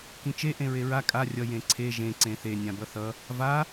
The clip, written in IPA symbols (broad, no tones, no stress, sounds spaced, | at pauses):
k ĩ t͡ʃ e ʔ ẽ ɹ e ɹ a kʼ a rʲ ʌ j ẽ ǀʰ e ʒ ẽ ǀ ẽ θ e nʲ ã b ʌ θ ʌ | v a